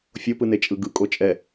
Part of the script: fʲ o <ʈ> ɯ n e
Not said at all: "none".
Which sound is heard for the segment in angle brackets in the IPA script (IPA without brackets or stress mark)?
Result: p